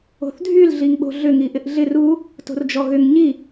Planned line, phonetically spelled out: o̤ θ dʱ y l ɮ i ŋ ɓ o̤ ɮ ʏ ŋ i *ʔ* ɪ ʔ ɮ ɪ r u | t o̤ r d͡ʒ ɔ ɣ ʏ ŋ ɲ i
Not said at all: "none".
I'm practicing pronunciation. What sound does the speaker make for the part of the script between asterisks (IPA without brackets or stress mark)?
ʔ